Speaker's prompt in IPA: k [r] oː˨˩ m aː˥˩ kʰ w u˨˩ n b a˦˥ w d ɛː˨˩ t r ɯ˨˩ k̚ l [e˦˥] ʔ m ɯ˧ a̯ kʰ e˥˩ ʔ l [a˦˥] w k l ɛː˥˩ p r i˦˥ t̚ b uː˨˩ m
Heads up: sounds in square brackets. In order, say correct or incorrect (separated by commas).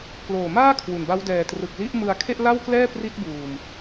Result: incorrect, incorrect, incorrect